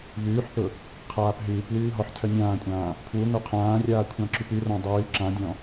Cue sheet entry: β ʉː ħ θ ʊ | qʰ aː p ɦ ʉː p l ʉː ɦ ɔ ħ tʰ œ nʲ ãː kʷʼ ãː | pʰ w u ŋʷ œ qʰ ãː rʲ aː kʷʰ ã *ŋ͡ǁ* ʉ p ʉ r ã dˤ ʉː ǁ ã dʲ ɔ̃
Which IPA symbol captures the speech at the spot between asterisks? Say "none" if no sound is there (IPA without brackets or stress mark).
ǁ